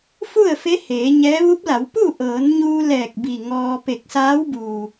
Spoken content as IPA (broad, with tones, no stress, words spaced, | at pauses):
fu˥˨ə̯fe˧˥ heː˩˧ɲɛː˧˥ ʋu˧˥p̚la˩˧wpu˥˨ ʔɤː˩˧nɲuː˧ lɛː˧˩k̚bi˧˩ŋɔː˧ pe˧˩k̚saː˧˥wbuː˩